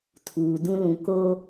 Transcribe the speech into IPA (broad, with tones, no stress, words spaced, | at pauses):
tʰuː˨ dũ˦lũ˨ ko˦